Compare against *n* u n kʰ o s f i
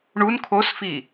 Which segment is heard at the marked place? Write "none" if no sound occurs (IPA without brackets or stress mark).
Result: ɳ